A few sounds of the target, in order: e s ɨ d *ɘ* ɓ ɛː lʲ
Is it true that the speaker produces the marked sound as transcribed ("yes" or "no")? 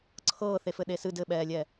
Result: yes